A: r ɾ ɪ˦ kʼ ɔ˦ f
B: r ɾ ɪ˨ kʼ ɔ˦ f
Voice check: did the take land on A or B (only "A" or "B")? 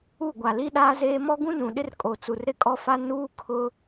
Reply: A